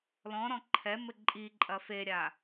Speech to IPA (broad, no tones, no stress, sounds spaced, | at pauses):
l ɔ̃ ɾ ɔ̃ ǃʰ ɛ m ɘ ǃʼ i ǃʼ ɐ f e ɾʲ a